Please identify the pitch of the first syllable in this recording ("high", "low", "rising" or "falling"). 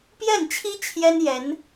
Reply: falling